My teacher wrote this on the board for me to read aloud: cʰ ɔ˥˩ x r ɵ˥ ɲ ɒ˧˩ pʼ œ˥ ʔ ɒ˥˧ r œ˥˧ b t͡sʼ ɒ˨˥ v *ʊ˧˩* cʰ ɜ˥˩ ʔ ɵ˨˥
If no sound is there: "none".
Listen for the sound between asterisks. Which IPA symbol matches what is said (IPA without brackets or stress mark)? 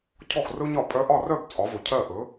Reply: ɵ˧˩